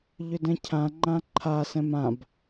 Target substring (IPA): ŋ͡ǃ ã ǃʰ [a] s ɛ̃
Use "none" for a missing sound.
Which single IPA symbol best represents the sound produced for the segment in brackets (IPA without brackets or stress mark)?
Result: a